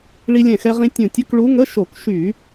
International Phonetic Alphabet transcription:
ɭ i˧ lʲ ɛ̃˧˩ x ɛ˧ ʁ ĩ˧ tʲ ũ˧˩ tʲ ə˧˥˧ k ɭ u˧˥ ŋ ə˧˥˧ ʃ o˧˩˧ k ʃ y˧˩˧

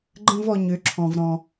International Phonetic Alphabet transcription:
ɡ͡ǃ ə̃˦ v ɔ˧ ɲ ø˨˦ ǁʰ ɔ̃˧ v ɾ ɔ̃˧

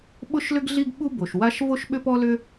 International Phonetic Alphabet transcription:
ɓ ʊ˥ ʃ l ʏ˥ ɡ ɮ i˥ ɡ ɓ u˥ b o˩ ʃ w a˥ ʃ v o˥ ʃ ɓ ʏ˥ p ɔ˥ l ʏ˥

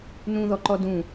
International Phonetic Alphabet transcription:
n ũ ð ɔ ǃ ɔ d ũ

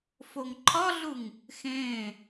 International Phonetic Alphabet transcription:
f o ŋ ǃʰ ɒ ɮ u ŋ | x ẽː

